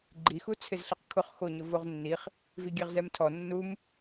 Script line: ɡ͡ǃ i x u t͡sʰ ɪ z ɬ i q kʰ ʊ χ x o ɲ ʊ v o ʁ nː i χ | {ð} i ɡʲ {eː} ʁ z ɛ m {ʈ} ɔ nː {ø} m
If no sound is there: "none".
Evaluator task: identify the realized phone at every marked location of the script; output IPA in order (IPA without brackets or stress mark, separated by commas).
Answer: v, e, tʰ, u